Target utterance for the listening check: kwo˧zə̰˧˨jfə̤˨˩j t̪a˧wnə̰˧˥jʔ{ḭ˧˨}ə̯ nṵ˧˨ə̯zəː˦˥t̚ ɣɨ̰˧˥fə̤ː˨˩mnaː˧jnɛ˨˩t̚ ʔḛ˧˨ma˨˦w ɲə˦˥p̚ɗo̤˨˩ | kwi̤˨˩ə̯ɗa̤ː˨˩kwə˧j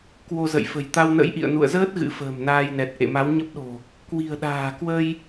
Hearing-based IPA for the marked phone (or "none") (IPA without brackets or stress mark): ḭ˧˨